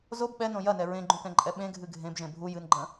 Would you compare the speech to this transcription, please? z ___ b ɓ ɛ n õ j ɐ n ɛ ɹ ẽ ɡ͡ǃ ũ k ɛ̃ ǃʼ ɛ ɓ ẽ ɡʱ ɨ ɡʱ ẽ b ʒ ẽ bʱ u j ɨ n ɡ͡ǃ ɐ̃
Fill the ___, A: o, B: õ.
A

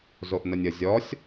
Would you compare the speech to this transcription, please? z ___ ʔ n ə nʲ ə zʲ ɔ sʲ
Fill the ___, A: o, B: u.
A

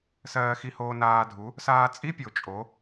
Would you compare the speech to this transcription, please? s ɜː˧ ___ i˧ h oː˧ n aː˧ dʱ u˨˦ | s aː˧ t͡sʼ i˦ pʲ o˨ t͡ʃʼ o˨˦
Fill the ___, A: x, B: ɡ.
A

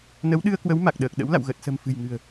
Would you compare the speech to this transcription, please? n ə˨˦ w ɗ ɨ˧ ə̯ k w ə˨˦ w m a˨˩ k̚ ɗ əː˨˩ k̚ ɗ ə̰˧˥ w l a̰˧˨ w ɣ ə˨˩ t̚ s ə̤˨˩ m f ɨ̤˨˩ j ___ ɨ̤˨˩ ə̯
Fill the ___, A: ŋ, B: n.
A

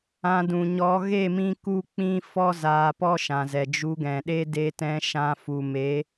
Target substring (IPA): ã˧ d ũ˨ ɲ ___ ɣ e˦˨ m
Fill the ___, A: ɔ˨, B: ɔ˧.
B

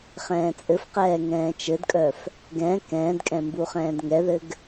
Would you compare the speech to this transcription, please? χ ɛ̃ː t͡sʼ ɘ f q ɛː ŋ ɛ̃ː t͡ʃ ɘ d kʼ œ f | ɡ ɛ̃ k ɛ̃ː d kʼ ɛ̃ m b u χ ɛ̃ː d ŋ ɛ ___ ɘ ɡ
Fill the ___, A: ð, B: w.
A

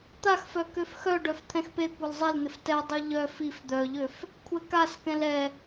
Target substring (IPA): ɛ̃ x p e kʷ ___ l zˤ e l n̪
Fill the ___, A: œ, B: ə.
A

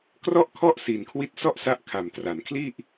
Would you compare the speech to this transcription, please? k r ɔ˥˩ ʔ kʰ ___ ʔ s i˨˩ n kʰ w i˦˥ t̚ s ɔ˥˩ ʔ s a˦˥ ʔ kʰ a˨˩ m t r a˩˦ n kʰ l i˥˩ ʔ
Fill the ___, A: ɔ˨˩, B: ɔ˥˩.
B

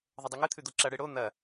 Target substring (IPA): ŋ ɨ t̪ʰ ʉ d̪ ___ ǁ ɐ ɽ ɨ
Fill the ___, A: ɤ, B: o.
B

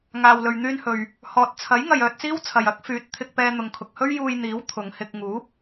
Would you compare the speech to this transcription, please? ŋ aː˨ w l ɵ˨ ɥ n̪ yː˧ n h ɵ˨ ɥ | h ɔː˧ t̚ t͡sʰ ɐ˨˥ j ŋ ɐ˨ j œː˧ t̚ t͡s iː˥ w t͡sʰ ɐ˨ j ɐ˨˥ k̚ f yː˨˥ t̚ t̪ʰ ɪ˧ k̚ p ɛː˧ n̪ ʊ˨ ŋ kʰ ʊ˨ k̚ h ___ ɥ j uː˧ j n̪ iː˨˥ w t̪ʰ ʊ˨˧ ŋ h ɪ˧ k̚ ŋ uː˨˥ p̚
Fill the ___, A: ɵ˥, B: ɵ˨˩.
A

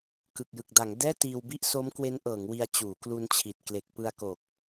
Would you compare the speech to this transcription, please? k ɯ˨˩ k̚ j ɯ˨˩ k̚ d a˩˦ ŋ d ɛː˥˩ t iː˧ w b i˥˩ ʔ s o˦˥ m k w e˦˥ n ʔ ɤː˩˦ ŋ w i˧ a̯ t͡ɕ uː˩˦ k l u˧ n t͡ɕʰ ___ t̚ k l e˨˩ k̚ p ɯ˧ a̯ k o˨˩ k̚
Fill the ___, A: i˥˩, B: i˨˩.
B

